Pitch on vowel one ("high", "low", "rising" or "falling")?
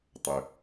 low